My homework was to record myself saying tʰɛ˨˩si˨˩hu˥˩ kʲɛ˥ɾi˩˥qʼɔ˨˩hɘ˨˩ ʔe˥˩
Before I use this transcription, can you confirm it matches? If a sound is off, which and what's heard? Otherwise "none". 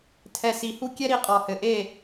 none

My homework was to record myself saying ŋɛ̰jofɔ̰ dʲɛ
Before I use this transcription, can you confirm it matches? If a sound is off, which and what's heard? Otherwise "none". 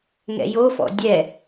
none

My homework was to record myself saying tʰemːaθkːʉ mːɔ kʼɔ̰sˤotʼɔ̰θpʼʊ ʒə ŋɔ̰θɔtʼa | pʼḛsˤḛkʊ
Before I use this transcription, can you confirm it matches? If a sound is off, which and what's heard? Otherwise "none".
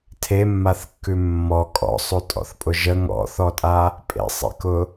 none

